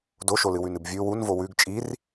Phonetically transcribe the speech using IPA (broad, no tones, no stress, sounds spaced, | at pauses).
d o ʃ o l ɨ w ʉ n ɨ b vʲ ʉ w u n v o w ʉ ɡ t͡ʃʼ i r